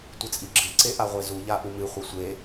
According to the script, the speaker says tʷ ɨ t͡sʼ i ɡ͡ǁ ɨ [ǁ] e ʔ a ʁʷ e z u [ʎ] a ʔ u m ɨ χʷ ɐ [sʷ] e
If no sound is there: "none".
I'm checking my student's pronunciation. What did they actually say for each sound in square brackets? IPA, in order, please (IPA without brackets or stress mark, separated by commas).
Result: ǀ, ʎ, sʷ